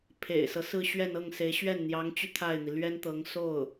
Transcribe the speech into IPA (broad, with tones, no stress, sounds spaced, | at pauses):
pʰ ḛ˨˩ ɪ̯ s ɤ˦ s ɹ̩˥˧ ɕ ɥ ɛ˥˧ n ɤ˥˩ ŋ s e˧˥ ɪ̯ ɕ ɥ ɛ˥˩ n n̪ j ɑ˧˥ ŋ t͡ɕ y˧ t̪ʰ a˥˩ ɪ̯ n̪ i˩ l ɥ ɛ˥ n t̪ ɤ˧˥ ŋ s o˥˩ ʊ̯